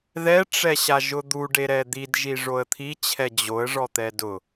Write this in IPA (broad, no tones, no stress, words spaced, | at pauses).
ðɛʈ͡ʂɛɕaʒʊ d̪uɖeɾɛ d̪idʒi ʐoə̯t̪ʰit͡ɕʰɛ d͡ʑoə̯ʐɔt̪ɛ dʊ